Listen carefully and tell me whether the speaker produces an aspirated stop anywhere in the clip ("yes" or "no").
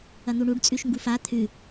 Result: yes